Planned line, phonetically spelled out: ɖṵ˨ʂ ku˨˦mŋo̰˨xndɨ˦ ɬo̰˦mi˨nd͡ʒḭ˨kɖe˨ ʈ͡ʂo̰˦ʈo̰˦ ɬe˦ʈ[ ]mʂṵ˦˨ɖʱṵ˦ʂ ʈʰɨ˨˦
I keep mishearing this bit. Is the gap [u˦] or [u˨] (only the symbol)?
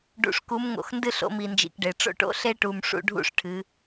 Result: u˨